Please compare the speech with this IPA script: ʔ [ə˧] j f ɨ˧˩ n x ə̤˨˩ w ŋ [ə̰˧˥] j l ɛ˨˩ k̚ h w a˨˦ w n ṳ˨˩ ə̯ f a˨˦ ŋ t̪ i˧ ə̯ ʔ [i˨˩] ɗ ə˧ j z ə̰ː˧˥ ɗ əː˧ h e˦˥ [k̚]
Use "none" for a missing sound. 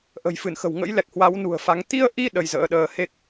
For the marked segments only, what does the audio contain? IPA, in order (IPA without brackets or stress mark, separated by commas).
ə̤˨˩, ə̰˧˥, i˧, k̚